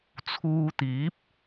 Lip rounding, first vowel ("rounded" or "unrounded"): rounded